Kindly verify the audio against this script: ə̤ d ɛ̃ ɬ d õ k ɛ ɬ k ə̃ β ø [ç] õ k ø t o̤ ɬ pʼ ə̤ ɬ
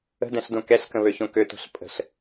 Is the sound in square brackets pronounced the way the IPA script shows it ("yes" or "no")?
yes